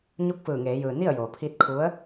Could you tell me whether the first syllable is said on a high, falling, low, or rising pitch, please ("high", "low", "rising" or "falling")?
rising